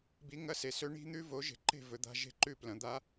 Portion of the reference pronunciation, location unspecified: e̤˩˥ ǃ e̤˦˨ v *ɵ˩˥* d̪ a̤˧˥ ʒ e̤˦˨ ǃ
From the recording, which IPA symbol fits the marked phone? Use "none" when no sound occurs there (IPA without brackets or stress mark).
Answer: ɵ˩˥